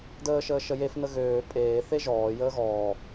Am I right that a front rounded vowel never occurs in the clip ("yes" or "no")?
no